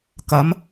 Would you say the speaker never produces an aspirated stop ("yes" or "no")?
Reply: yes